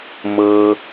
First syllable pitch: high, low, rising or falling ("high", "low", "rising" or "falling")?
low